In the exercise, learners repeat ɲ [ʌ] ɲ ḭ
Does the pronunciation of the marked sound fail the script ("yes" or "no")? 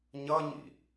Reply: no